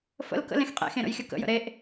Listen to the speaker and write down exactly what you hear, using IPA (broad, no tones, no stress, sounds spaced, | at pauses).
f ə̰ l k ə̰ l ẽ x qʼ ḛ x ẽ ɾ ə̰ j xʲ ə k ə̰ j ə̰ ɾ e ʔ